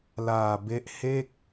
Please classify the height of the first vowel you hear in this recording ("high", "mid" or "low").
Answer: low